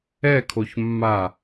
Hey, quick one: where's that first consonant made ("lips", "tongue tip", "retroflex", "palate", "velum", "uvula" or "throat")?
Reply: velum